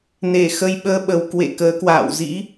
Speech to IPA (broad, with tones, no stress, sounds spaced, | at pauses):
n e˧˩ x ə˧ j ɓ əː˧ ɓ ə˨˩ w k w ḛ˧˨ k əː˨˦ k w a̰ː˧˨ w z ḭ˧˥